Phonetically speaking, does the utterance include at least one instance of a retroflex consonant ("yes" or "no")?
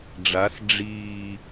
yes